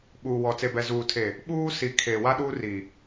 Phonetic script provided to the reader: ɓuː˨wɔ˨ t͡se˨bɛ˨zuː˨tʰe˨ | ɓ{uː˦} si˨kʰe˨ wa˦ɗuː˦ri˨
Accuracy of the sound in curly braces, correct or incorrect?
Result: correct